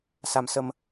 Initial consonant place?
alveolar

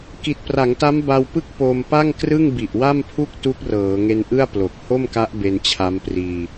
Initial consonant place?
velar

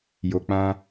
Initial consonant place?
palatal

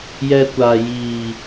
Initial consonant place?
palatal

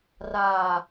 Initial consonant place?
alveolar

